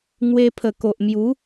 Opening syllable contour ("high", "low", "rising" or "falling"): high